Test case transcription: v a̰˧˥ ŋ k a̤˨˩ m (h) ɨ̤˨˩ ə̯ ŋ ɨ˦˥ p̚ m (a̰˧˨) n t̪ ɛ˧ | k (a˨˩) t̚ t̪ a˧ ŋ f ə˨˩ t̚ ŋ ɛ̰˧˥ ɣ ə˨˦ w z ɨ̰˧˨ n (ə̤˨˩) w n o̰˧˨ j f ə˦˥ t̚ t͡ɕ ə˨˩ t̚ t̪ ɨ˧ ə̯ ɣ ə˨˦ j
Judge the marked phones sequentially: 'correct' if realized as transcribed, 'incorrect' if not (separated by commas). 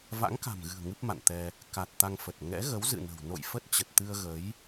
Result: incorrect, correct, correct, correct